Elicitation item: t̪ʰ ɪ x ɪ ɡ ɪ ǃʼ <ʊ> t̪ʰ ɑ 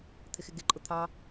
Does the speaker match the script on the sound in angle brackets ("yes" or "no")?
yes